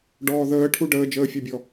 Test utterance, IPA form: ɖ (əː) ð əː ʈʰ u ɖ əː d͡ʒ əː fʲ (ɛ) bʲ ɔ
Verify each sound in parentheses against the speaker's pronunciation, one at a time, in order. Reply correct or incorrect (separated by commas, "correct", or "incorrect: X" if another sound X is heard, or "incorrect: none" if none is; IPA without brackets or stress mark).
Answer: incorrect: ɔː, correct